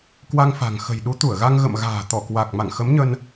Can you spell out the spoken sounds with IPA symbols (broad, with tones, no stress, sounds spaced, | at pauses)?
k w a˧ ŋ f a̤˨˩ ŋ x ə̤˨˩ j ɗ u˨˦ t̪ u˧˩ ə̯ ɣ a˧ ŋ ɣ ə̰˧˨ m ɣ a̤ː˨˩ t̪ ɔ˧˩ k w a˨˩ k̚ m a̰˧˨ ŋ x ə˨˦ m ɲ ə˧ n